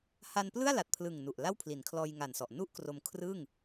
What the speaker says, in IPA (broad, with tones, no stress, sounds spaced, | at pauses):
h a˧ n p l ɯ˥˩ a̯ l a˨˩ t̚ pʰ l ɯ˨˩ ŋ n u˨˩ ʔ l a˥˩ w pʰ l i˩˦ n kʰ l ɔː˧ j ŋ a˨˩ n s ɔ˨˩ ʔ n u˥˩ ʔ k r o˧ m kʰ r ɯ˥˩ ŋ